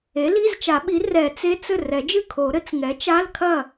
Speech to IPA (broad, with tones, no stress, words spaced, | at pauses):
e˩˥li˧˥˧zt͡ʃa˨˩˦ɓi˩˥ rɛ˨˩˦t͡se˧˥˧t͡s ɘ˥˩rɛ˨˩˦d͡ʒɨ˥˩ kʰo˨˩˦ɾɘ˩˥t͡s ŋɛ˩˥t͡ʃa˧˥˧lkʰɐ˥˩